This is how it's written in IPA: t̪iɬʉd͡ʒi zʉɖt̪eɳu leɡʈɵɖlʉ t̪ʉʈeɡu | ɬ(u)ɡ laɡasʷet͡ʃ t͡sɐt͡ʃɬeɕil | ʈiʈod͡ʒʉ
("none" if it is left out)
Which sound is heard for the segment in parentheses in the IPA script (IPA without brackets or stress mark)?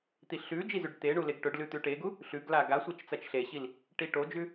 ʉ